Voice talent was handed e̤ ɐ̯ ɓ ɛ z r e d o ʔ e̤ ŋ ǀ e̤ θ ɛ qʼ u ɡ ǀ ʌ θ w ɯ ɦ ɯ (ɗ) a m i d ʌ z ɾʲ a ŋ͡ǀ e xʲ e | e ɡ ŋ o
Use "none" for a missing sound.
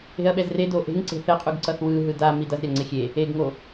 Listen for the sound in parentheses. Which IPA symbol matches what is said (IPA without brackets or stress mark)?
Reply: d